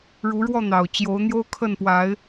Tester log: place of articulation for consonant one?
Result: retroflex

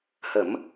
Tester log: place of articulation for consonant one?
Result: glottal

